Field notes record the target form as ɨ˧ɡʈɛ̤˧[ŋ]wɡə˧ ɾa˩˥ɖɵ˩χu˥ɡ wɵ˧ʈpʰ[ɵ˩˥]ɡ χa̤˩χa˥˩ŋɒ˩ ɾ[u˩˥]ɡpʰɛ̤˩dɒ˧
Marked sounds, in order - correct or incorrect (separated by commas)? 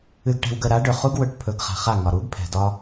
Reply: incorrect, correct, correct